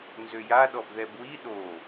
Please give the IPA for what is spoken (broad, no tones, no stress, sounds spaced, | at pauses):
n z ø j a ɗ ɔ b ð ɛ b w i ɗ o